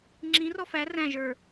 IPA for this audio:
ŋ͡ǁĩ rɔfæ ræ̃ ʒə˞

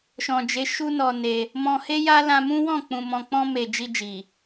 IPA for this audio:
ʃɔ̃˨d͡ʒe˨˦ ʃu˦nɔ˧ne˧ | mɔ̃˧he˦ja˦ lã˧mũ˦wɔ̃˦˨ k͡pũ˨ mɔ̃˧ k͡pɔ̃˧me˨ d͡ʒi˧ d͡ʒi˨

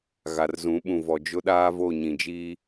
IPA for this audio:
ɣa˨rzũ˨˦ɓũ˨ vɔ˨d͡ʒʊ˦ɗaː˦vo˦˨ ɲĩ˨d͡ʒiː˦

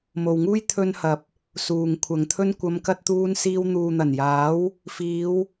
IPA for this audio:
mo˨wŋuː˥j t̪ʰɵ˧nhɐ˨p̚ | suː˨ŋkʷʰɐ˨ŋt̪ʰɵ˥n kʷɐ˨˧mkɐ˧t̚t̪uː˧nsiː˧w n̪uː˨n̪ɐ˨˩njaː˨˥w | fiː˨˧w

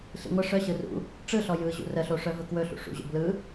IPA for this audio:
ɬḭŋʷə ʂœ ɕɯrṵ | ʈ͡ʂɯɬɔ jɯʑṵ rəɬoʂœ vɵkwɵɬṵ ʂṵʑo̰ blɯ

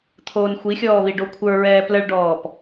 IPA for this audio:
t̪ʰoːnxʷixʲɔː βiɖokʷʰə˞ɹɛː pləɭɖɔːp

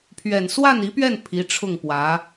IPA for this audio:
pʰɥɛ˨˩n swa˥˩ni˧˥pɥɛ˥˩n pʰi˧˥ʈ͡ʂʰʊ˥˩ŋpwä˧˥

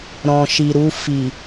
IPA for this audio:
ɾɔ̃˨ʃi˨ɾu˧ fi˨

